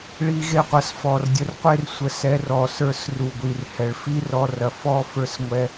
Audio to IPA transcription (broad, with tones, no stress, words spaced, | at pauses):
ɭi˧ɣe˧qʷɐ˨sfɔ˨r dʲə˧rqʷe˦rsʷə˧ sɛ˧r ɔ˨sə˞˧s ru˨ɡʷi˨rhɛ˨ɭ fi˦rɔ˧rɐ˨ fɔ˦ fə˞˦s ŋʷɛ˧